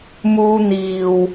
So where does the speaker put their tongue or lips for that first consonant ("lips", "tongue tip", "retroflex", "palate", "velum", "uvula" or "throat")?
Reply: lips